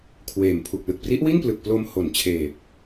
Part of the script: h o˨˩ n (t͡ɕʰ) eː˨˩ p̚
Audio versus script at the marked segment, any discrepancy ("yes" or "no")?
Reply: no